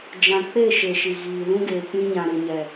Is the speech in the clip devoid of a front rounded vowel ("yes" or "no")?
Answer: yes